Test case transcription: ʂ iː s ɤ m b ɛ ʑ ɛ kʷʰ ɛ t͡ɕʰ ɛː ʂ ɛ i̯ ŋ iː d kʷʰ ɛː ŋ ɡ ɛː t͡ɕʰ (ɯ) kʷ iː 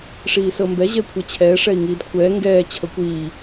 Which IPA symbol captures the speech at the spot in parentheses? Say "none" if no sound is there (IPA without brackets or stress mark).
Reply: ɤ